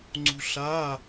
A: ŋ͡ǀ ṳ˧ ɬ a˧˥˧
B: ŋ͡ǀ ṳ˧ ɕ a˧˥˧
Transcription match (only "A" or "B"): A